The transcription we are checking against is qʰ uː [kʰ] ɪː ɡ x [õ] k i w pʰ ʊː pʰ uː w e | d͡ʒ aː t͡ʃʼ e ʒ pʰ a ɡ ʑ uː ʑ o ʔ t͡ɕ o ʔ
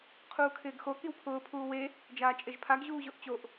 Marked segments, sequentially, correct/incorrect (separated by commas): correct, incorrect